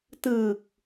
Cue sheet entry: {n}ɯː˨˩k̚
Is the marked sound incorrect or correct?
incorrect